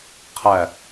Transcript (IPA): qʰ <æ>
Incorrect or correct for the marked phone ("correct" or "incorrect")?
correct